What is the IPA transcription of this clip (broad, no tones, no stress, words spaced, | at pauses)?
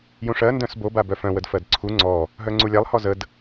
jũʂɜ ndœ̃sbo babœfœ̃ wədfɜdǀʰu ŋ͡ǀɔ | ɦœŋ͡ǀulʲalˠ hɔzəd